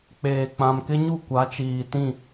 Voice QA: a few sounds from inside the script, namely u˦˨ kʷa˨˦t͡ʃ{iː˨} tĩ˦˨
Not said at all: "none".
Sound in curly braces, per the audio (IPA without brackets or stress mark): iː˨